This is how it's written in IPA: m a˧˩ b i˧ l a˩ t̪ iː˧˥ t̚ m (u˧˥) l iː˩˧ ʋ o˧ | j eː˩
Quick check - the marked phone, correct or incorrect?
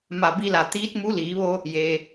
correct